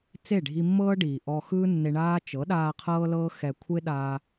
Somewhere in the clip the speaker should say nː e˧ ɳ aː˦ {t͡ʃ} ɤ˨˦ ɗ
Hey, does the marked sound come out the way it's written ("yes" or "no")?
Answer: yes